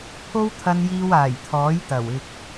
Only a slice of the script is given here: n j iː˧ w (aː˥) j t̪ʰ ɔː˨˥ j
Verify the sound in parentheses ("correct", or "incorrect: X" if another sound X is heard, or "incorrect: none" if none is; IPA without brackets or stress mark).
incorrect: aː˨˩